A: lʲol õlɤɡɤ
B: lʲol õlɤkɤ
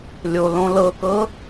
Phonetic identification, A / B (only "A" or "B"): B